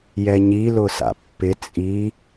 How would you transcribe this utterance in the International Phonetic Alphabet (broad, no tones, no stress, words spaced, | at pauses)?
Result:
jɛɲi lʊsa̰pːɪ t͡sʼi